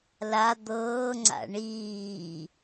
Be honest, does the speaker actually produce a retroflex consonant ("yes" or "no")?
yes